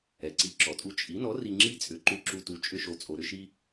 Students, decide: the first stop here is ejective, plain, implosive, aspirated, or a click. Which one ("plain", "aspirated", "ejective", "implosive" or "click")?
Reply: click